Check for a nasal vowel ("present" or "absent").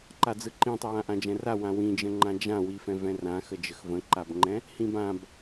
present